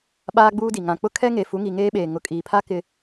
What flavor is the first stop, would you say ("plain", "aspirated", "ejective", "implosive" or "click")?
implosive